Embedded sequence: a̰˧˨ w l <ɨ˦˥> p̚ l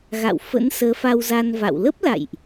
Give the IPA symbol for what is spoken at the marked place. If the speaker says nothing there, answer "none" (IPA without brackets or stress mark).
ə˦˥